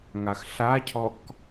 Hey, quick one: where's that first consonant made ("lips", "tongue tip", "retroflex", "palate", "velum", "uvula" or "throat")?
velum